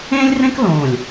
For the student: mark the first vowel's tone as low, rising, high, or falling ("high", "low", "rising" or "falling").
high